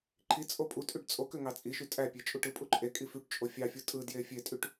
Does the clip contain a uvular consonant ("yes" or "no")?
no